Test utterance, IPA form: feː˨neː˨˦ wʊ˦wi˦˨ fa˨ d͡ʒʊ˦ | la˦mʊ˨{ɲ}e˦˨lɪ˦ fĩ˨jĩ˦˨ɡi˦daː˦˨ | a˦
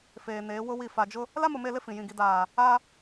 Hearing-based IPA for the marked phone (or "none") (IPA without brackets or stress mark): m